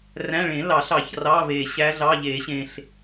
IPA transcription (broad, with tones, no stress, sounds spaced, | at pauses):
r æ̃˧˥˧ ɭ ẽ˨˩˦ l ɑ˨˩˦ ɬ ɑ˨˩ ç r ɑ˧˥˧ v e˨˩ ɕ æ˦˥ ɮ ɑ˧˥˧ ʎ e˨˩˦ ɕ ẽ˨˩ ɬ